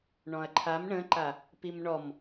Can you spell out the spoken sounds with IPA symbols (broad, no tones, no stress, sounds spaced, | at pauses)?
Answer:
ɳ ɔ̃ ɐ̯ ǃʰ a m ɳ ə̃ ǃ a | p i m ɳ ɔ m